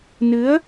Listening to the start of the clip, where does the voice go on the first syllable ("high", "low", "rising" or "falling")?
rising